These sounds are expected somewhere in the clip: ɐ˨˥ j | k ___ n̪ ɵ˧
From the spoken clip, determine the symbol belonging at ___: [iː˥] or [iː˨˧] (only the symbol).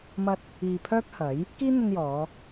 iː˥